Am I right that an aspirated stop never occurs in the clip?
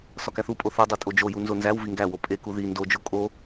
yes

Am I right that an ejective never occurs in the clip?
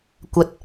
yes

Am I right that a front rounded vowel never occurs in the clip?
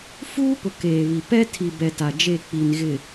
yes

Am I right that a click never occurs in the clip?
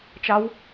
yes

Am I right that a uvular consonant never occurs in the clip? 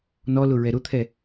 yes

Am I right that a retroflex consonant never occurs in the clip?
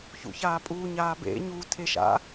yes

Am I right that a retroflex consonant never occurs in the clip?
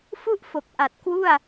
yes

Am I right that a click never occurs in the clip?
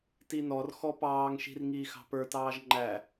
no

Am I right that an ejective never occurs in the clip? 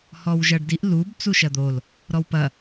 yes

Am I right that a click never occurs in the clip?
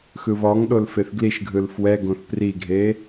yes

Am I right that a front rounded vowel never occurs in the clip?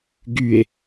no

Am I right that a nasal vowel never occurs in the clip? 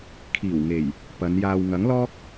yes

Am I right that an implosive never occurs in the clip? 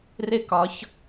yes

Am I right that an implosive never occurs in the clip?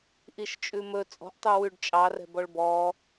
yes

